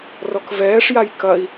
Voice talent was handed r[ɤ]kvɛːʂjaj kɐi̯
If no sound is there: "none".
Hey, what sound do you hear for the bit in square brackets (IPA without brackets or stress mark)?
ɔ